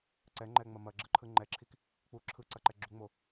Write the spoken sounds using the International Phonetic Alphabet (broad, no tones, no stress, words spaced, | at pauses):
ǀɛŋ͡ǃɛŋ͡mɐ mɐɡ͡ǁɯǃʰɯ ŋ͡ǃɛǁʰik | k͡pu ǁʰɯǀɐǃɛ ɡ͡ǁuŋ͡mo